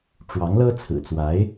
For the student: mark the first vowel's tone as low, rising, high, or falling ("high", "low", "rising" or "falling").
rising